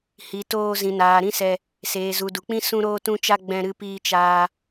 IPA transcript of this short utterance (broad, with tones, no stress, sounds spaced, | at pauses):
h i˨ t oː˧ z ĩ˨ n aː˨ ɾ ĩ˦ s ɛ˧ | s eː˨ z u˨ d u˨ k͡p ĩ˦ s ũ˧ ɾ oː˧ t ũ˧ t͡ʃ a˧ ɡ͡b ɛ̃˧ ɾ ɨ˧ p iː˧ t͡ʃ aː˧